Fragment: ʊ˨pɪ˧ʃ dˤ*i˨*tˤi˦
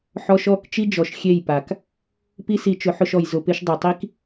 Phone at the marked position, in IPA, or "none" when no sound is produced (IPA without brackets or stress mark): i˨